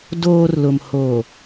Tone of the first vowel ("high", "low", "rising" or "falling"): low